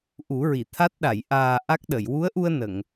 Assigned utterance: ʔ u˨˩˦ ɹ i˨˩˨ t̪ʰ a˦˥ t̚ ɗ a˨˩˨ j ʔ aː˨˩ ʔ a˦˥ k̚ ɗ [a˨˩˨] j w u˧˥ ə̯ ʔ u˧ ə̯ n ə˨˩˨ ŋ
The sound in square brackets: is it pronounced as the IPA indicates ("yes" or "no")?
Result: no